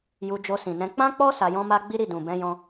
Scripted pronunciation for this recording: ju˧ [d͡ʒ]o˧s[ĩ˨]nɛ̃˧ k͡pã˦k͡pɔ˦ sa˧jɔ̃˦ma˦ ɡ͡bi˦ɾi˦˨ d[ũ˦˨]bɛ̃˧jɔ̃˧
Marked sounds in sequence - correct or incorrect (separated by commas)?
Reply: correct, correct, incorrect